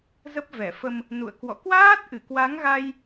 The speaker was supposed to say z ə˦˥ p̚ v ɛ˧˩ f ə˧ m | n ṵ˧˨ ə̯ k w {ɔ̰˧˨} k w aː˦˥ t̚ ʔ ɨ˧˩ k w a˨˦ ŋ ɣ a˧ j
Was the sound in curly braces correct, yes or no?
yes